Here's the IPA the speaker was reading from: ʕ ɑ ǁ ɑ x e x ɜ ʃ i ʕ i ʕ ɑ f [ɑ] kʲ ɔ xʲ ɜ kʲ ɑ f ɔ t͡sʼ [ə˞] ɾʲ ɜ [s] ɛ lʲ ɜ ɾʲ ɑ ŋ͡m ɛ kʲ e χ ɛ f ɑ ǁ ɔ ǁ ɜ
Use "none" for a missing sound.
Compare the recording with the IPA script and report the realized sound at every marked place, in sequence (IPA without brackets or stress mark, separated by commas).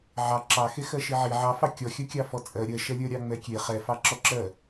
ɑ, ɜ, ʃ